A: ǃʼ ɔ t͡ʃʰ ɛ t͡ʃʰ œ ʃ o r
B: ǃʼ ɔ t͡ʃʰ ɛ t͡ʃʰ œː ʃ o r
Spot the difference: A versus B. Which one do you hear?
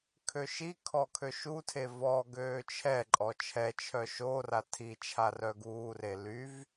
A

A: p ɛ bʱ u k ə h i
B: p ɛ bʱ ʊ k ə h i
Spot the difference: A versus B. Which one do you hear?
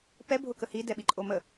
B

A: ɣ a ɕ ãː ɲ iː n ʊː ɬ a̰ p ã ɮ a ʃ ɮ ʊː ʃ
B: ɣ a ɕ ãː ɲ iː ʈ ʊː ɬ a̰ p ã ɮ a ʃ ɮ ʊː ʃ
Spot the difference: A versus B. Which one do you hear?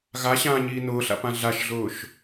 A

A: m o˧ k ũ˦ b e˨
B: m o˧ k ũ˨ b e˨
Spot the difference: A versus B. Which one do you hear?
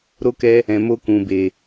B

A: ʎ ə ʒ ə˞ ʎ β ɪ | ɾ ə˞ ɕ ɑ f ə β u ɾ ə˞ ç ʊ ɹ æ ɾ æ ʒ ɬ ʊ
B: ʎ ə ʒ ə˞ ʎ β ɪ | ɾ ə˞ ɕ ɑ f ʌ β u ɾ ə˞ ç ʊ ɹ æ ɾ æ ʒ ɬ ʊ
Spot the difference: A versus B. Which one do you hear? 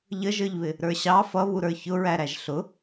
B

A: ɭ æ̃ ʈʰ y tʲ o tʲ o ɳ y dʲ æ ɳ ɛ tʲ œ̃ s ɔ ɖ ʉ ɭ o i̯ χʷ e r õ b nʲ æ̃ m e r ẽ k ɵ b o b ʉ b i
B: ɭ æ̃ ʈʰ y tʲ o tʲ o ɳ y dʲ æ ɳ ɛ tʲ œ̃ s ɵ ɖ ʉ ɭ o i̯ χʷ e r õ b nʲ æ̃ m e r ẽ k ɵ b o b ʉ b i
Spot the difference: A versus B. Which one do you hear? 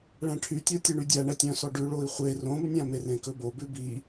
A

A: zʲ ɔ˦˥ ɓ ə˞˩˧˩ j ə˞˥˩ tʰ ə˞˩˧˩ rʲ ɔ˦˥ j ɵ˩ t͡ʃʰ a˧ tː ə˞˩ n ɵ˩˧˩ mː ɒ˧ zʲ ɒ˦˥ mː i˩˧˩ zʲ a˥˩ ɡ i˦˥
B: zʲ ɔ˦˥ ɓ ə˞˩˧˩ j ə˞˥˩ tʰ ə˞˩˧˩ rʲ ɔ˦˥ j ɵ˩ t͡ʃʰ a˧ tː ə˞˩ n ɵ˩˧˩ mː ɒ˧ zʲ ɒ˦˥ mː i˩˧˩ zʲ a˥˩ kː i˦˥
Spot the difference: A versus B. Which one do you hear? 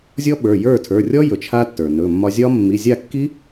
B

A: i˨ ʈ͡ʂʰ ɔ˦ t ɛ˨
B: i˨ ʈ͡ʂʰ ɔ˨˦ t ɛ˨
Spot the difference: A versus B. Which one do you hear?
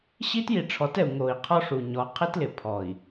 B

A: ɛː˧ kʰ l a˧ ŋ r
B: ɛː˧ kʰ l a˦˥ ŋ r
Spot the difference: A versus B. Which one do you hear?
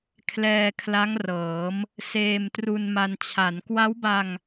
B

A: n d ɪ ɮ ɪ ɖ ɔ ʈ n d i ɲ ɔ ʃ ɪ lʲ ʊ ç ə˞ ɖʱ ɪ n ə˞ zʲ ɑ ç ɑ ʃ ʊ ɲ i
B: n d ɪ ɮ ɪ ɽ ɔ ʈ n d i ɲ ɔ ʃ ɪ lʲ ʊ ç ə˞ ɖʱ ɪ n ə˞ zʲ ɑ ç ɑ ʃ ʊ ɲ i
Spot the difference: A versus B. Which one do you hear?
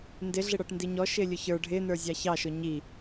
B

